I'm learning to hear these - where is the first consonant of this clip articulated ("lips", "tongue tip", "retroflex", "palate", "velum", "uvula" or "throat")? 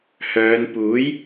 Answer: throat